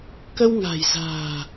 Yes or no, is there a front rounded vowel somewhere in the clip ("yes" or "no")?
no